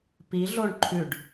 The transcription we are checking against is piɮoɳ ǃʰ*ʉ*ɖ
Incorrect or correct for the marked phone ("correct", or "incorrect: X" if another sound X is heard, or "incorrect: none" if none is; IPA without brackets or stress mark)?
correct